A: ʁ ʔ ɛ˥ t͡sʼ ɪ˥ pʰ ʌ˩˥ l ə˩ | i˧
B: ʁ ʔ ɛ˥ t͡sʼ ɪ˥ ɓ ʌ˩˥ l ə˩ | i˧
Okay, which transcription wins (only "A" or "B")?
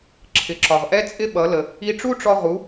B